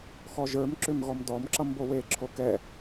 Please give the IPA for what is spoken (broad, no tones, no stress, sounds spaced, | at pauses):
x ɔ ʒ ə˞ m ǁ ʏ m ɣ ɔ m d ɔ m ǁ ʌ m b o w e ǁʰ o k ɛ